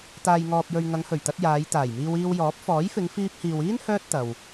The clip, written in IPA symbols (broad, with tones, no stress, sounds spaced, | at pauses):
t̪ aː˨ j ŋ ɔː˨ p̚ j ɵ˨ ɥ ŋ ɐ˨˧ ŋ h ɵ˨˩ ɥ t̪ ɐ˧ t̚ j aː˨˧ j t̪ aː˨˩ j m iː˧ w iː˧ w j ɔː˨˥ p̚ f ɔː˨˥ j f ɪ˨˧ ŋ f iː˧ p̚ h iː˨ w iː˥ n h œː˥ t̚ t̪ ɐ˨ w